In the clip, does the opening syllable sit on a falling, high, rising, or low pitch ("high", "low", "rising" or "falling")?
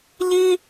high